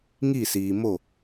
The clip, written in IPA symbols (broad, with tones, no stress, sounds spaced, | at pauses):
ŋ i˦˨ s iː˨ m o˦˨